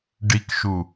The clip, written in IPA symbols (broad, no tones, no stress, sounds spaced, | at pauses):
ɖ i k ʃ u